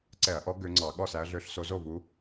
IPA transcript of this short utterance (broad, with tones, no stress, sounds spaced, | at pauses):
ǀ ɛ˧˩˧ ɐ̯ ʔ ɔ˨˦ ɡ ø˨˦ ŋ͡ǀ ɑ˧˩˧ ɠ ɔ˥˩ s æ˨˦ ɐ̯ ɮ ø˨˦ ɬ s o˨˦ z o˥˩ v u˨˦